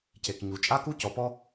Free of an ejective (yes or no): no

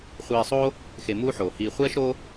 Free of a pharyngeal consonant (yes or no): no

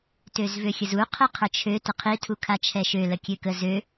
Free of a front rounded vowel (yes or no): no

